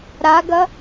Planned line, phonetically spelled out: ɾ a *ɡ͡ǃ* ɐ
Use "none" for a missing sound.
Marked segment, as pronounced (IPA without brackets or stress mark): ɡ